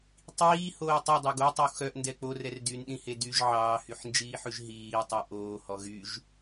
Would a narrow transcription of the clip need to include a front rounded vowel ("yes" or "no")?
yes